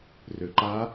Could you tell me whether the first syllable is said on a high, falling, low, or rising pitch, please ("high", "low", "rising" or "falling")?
low